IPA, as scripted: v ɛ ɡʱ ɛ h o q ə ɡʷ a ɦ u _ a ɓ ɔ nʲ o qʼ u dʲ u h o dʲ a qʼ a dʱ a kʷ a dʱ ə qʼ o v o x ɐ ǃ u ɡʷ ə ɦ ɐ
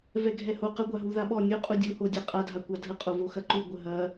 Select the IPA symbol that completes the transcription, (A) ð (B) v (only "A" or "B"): A